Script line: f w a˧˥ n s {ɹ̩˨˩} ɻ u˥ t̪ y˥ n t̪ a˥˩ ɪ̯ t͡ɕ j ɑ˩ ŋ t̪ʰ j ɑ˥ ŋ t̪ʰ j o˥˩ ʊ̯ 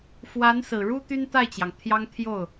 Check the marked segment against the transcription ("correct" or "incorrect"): correct